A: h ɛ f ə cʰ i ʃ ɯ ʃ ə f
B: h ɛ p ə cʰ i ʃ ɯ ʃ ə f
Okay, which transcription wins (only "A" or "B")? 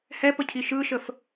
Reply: B